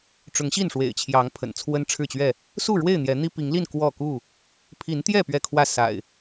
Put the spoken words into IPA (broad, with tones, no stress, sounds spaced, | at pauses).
ʈ͡ʂ ʊ˨˦ ŋ ɕ i˥˨ n ʂ w ḛ˨˩ ɪ̯ t͡ɕʰ j ɑ˨˦ ŋ pʰ ə̰˨˩ n t͡sʰ w ə˦ n ʈ͡ʂʰ ɻ̩˥˨ t͡ɕ ɥ ɛ˥˨ | s u˥˨ ɻ w e˥˨ ɪ̯ n̪ j ɛ˨˦ n̪ i˦ p i˨˦ ŋ l i˥˨ n k w ɔ˥˨ k u˥˨ | pʰ i˨˦ n t̪ j ɛ˥˨ p ɥ ɛ˥˨ kʰ w ä˥˨ s a̰˨˩ ɪ̯